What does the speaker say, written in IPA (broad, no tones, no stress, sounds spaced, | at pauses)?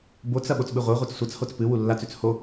b o t͡s ɐ ɓ o t͡s ɓ ɨ ʁʷ e ʁʷ i t͡s sʷ ɐ t͡s h o t͡s p ɨ w u lː a t͡s ʉ t͡s h o